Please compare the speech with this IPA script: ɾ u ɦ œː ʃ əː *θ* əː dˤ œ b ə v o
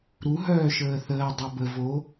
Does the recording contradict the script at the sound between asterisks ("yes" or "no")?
no